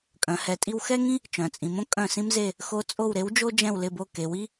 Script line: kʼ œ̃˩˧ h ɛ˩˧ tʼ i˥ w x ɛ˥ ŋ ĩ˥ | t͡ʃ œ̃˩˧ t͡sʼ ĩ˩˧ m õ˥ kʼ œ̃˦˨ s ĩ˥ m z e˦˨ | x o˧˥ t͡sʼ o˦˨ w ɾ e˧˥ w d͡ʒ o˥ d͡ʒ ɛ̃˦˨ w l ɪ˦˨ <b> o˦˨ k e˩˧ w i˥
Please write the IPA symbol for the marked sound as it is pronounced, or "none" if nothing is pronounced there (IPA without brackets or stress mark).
b